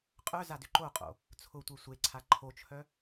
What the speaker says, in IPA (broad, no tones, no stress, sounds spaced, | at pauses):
qʼ œ z a d ʏ ǃ o qʼ o̰ | t͡sʰ ʊ tʷ e sʷ e ǀʰ a ǃʰ o t͡ʃʰ œ